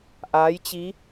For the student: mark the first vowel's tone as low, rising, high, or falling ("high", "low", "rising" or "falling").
rising